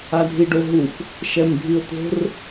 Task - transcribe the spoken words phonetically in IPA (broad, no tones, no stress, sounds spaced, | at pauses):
a dʱ i ɖ o ɦ u f | ʃ ɛ m dʱ i ʊ̯ t̪ o̤ r